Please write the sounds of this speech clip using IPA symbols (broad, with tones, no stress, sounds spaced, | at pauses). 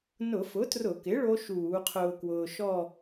n ʊ˧˩˧ f ʊ˩˥ t r ʊ˧˩˧ k ɪ˩˥ ɭ o˦˥ ʃ uː˧˩˧ qʰ ʊː˧ k w ʊː˧ ʃ ɔ˥˧